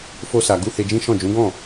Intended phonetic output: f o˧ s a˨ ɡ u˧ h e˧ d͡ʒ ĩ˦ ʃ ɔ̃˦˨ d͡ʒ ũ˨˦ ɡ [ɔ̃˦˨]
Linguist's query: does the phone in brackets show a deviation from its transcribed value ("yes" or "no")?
no